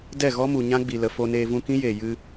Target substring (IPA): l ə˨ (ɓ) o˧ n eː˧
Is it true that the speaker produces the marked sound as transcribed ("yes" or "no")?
no